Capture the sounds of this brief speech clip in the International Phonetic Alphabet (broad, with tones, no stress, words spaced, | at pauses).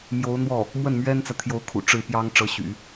mjo˧˥ʊ̯n̪wɔ˥˩ | mwə˥˩nmɥɛ˥nt͡sä˨ t̪ʰjo˧˥ʊ̯kʰṵ˨˩ ʈ͡ʂɻ̩˥˩pjɑ˥ŋ ʈ͡ʂɤ˧˥ɕy̰˨˩˦